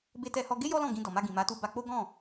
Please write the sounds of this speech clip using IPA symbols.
b e˧ t ɛ˧ h ɔ˧ ɡ e˦ j ɔ˦ l ɔ̃˦˨ ɡ ĩ˧ d ɔ˨ m a˧ ɡ ĩ˨ m a˨˦ t u˧ b a˧ k͡p o˦ ɡ ɔ̃˦˨

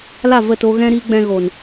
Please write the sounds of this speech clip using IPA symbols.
l a˦˨ v ə˦˨ t o˧ ɣ ɛ̃˦ ɾ i˦ ɡ͡b ɛ̃˧ ɣ o˨ n

